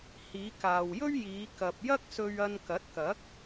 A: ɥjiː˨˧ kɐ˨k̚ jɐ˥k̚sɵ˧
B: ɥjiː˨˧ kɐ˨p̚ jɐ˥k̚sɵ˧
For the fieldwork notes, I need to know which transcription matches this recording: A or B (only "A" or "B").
B